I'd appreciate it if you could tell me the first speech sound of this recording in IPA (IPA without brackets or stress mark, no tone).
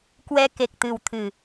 k